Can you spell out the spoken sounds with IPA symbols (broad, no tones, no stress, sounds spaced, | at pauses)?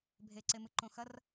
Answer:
bʱ e ǀ e m ɨ ǃ õ x ɐ r